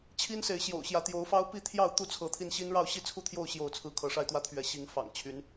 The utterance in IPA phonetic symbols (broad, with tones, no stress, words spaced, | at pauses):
t͡ɕʰi˦nse˨˦ɪ̯ ɕjo̰˨˩ʊ̯ɕjä˨˦ t̪jo˨˦ʊ̯fɑ˦ʊ̯pi˥˨t̪ʰjɑ˥˨ʊ̯ t̪u˥˨t͡sʰɤ˨˦t̪ʰi˧nɕi˦n ɻɑ˥˨ʊ̯ɕi˥˨t͡sʰu˥˨t̪ʰjo˥˨ʊ̯ ɕjo˥˨ʊ̯t͡sʰɹ̩˦ kʰɤ˨˦ʂa˥˨ɪ̯t̪wä˥˨t̪ʰɥɛ˨˦ ɕi˨˦ŋ fɑ̰˨˩ŋt͡ɕʰy˨˦n